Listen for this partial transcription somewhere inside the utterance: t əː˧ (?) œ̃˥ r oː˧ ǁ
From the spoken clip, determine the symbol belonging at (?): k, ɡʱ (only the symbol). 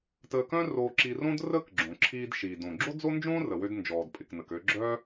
k